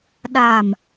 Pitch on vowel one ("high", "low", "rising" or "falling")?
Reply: low